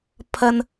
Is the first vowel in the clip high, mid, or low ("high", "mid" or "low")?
low